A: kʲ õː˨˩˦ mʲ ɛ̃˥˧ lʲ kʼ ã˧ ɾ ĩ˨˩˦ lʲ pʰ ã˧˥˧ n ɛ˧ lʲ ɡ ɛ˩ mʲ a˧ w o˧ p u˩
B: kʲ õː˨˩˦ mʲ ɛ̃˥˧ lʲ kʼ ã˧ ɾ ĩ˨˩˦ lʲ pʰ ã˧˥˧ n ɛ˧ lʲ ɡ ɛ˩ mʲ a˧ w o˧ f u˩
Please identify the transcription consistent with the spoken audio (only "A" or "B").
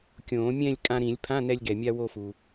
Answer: B